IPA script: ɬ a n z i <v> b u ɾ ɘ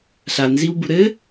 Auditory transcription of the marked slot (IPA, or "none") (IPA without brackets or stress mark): w